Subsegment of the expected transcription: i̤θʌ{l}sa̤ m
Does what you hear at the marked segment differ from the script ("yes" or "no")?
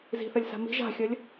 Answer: yes